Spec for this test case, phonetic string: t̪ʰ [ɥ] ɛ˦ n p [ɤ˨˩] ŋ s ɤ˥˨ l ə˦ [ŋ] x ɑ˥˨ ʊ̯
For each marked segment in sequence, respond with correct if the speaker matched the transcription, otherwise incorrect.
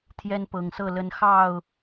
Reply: incorrect: j, correct, incorrect: n

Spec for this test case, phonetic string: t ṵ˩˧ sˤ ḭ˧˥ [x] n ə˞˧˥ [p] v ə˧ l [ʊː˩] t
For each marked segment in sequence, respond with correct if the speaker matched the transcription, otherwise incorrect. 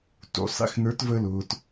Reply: correct, incorrect: t, correct

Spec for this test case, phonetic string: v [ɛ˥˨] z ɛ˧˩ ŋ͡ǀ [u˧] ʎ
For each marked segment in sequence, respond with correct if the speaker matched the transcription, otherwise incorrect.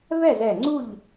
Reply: correct, incorrect: u˥˨

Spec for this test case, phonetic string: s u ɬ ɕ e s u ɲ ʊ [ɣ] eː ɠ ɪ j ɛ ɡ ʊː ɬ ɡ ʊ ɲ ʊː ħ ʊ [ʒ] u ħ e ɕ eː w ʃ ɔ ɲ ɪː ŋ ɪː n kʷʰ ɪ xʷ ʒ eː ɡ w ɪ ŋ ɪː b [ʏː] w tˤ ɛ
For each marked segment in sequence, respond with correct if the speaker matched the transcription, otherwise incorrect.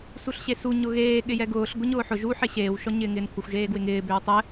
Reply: correct, correct, correct

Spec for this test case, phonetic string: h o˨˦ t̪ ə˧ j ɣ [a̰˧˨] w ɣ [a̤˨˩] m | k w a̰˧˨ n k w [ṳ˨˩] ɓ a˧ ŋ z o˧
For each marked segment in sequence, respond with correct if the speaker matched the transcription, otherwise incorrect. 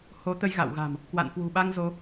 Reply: correct, correct, correct

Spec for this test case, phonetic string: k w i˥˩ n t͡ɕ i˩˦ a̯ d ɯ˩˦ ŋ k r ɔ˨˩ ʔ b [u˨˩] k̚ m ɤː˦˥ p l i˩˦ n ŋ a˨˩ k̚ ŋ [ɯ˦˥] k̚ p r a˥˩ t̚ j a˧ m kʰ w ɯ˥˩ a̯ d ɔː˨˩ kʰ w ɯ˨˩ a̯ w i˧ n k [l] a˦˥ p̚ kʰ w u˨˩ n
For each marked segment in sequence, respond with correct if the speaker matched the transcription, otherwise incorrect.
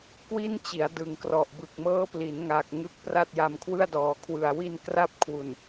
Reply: incorrect: ɯ˨˩, correct, incorrect: r

